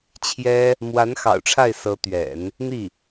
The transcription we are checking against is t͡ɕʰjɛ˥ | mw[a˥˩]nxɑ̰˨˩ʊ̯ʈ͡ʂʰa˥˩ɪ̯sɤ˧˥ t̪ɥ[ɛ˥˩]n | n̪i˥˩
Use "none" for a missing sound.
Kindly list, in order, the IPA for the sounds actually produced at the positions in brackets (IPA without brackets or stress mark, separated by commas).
a˧˥, ɛ̰˨˩˦